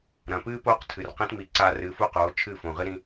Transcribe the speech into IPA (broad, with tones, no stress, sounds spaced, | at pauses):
ɾ ɐ̃˩ p ɨː˥ p oː˥ q tʰ ɨ˩ r q ẽ˥ t m i˩˥ ǀ a˧ r ɨː˩˥ f u˥˩ q oː˩˥ t͡ʃʰ ɨ˥˩ f õ˩ ʁ ɨ˥ ɾ ĩ˧